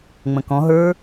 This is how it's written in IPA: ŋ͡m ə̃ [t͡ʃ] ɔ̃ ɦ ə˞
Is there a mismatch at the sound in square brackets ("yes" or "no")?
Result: yes